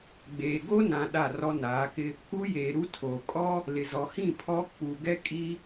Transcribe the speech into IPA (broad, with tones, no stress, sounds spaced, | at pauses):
ɡ͡b eː˨ ɡ o˦ n ã˨ ɗ a˦˨ r ɔ˦ n aː˨˦ k ɪ˦ | k u˦ j eː˨ ɾ u˦ tʰ oː˨ kʼ ɔ˦ | l ɪ˨ z ɔ˨ h ĩ˦˨ pʰ ɔ˦ k͡p u˨ ɡ ɛ˦ kʼ i˦